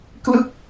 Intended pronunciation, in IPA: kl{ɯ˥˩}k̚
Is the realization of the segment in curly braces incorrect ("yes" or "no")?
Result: no